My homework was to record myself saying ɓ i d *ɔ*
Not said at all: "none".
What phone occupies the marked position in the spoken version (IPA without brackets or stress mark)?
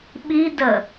ə